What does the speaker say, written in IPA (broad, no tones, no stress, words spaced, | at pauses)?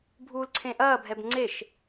bʱuːlǀʰẽʔɐːbʱɛb ŋ͡ǀeʃ